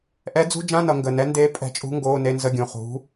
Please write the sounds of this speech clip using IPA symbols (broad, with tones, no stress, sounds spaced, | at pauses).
ʔ ɛ˧˥ d͡z ṳ˧˥˧ d͡ʒ ã˧˥˧ n ʌ˩˧ ŋ ɡ ə˩˧˩ n ɛ˧˥ n d eː˧˥ pʼ ɛ̤˧˥ t͡ʃʼ ṳ˧˥ ŋ ɡ oː˧˥˧ n e˧˥˧ n z ə˧˥˧ ɡʲ ũ˩˧˩ χ ṳ˩˧